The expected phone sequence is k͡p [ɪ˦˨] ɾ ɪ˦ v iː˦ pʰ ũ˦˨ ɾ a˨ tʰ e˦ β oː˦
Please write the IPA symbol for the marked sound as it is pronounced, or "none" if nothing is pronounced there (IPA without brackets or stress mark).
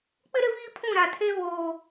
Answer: ɪ˦